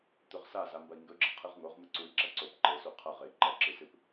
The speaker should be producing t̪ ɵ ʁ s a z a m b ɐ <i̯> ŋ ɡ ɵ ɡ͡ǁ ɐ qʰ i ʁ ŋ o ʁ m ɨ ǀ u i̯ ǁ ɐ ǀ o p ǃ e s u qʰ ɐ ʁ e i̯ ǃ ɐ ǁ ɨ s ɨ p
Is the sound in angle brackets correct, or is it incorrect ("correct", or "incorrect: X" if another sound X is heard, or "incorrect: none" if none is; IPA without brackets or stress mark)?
correct